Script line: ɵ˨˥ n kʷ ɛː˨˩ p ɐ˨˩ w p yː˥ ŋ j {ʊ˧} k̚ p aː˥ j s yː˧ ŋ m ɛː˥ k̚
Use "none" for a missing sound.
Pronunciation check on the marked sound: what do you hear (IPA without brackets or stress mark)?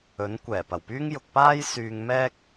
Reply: ʊ˧